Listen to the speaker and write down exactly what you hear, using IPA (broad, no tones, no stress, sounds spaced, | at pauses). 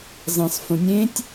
zˤ ẽ sˤ f ũ nʲ ẽ tʲ